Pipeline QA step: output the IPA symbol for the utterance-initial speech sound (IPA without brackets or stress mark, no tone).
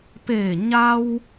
p